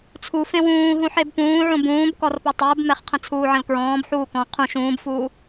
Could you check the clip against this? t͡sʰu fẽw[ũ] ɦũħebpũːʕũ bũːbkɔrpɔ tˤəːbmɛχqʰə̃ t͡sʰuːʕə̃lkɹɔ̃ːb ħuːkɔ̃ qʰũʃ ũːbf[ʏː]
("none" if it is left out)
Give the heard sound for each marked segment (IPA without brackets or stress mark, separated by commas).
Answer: ũː, uː